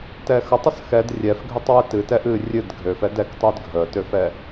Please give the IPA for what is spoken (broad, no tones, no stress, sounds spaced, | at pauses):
t ɛ x ə tˤ ə s x ɛ d rʲ ɛ f ɡʱ ø tˤ w ɨ t ɨ t ɛ ʔ ɨ rʲ ɨ d ɡʱ ø f ɛ d ɛ k tˤ ø d ɡʱ ə t ø f ɛ